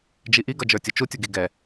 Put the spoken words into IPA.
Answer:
d͡ʒiʔiɡʌ d͡ʒə˞tʲʊt͡ʃutʲʊ ɡiɡɛ

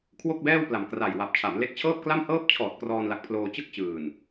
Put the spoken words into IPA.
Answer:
kʰwo˥˩k̚bɛː˥˩w pla˨˩mkra˨˩jwa˨˩p̚ t͡ɕʰa˩˦mle˦˥k̚ t͡ɕʰɤː˥˩p̚kla˥˩mhɤː˥˩p̚ t͡ɕʰɔː˨˩t̚ krɔː˧nla˨˩k̚pʰloː˧ t͡ɕɯ˥˩k̚t͡ɕɯː˨˩n

